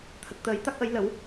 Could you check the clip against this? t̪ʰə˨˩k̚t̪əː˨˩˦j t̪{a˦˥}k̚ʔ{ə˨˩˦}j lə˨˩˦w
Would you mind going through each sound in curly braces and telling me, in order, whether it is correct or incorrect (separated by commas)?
correct, correct